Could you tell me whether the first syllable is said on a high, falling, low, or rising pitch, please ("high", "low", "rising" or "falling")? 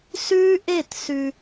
high